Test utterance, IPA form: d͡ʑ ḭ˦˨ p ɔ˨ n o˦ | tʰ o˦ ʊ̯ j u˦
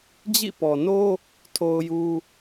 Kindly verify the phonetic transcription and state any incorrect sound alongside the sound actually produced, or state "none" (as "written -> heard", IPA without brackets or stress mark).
none